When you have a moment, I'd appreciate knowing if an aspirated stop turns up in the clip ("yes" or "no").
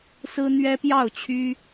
yes